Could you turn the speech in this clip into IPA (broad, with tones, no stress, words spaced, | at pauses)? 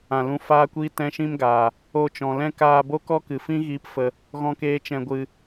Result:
ã˧lũ˦ faː˦kʷiː˦ tɛ̃˦ʃĩ˦mɡaː˨ | o˧t͡ʃɔ̃˨lɛ̃˦ kaː˧ bo˦kɔ˦kɨ˨fĩ˦ ɣiː˦pfə˧ | ɣɔ̃˦keː˦t͡ʃɛ̃˧ ɡʷɨ˧